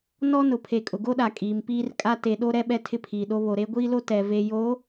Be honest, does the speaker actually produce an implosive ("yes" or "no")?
yes